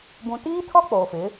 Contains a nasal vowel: yes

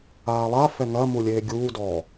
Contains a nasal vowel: no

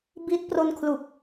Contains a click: no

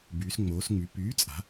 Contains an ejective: yes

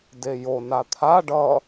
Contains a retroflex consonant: yes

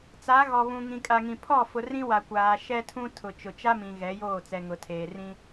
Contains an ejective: yes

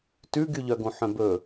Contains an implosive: no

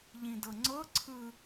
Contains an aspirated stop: yes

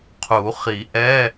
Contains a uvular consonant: yes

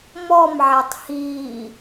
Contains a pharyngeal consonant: yes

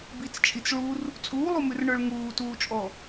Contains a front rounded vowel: no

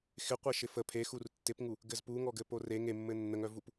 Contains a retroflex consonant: no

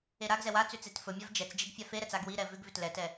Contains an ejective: no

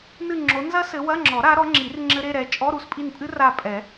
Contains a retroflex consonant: no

